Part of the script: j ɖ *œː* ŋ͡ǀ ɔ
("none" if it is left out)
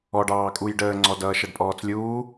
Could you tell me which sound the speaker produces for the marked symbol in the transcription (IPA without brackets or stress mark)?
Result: əː